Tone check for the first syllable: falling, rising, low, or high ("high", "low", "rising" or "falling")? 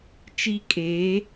high